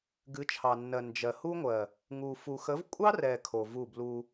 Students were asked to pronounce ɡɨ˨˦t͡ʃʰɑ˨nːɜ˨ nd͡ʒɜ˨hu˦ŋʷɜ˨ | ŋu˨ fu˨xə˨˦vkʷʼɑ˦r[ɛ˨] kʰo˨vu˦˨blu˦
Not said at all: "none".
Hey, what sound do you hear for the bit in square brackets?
ɛ˨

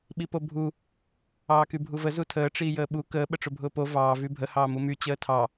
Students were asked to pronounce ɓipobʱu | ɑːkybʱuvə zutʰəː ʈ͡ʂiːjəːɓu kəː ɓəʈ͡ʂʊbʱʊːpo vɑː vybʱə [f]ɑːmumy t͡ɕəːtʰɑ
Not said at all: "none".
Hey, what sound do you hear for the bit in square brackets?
h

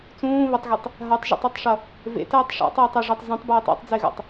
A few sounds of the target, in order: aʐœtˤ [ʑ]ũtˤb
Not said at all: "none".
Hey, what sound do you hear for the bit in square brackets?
z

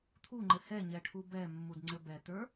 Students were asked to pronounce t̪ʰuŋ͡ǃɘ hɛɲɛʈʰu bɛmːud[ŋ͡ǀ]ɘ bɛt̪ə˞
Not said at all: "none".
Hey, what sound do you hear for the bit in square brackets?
ŋ͡ǀ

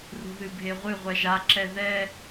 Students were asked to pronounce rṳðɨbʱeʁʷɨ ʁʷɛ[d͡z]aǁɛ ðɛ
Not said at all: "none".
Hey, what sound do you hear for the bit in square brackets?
ʒ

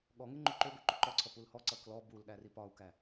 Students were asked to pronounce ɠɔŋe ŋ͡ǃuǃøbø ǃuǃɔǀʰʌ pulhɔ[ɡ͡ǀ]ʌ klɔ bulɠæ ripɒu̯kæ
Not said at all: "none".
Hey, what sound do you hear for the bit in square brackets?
ǀ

